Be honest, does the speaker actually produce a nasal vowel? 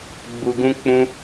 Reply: yes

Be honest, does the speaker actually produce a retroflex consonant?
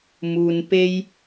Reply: no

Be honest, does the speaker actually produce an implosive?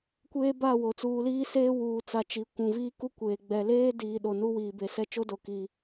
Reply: yes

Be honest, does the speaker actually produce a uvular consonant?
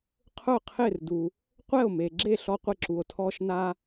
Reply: yes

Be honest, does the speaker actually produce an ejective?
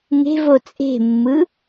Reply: yes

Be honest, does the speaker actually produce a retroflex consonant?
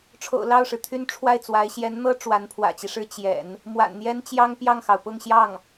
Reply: yes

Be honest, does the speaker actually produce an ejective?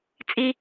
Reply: yes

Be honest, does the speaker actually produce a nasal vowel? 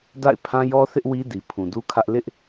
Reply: yes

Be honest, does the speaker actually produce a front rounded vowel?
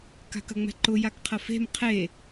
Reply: no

